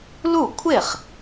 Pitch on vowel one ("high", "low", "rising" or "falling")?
falling